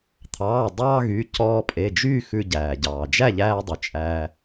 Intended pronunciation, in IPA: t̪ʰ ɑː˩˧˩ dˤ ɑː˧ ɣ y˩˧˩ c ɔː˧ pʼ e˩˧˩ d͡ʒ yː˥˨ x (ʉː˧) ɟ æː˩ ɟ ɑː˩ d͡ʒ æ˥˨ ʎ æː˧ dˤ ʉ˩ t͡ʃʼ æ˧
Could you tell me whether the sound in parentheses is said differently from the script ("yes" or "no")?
yes